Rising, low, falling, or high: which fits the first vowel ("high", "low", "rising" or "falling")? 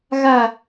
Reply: falling